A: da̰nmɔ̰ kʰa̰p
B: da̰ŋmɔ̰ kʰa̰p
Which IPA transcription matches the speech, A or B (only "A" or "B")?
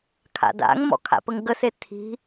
B